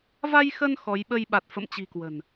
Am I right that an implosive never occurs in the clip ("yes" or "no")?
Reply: no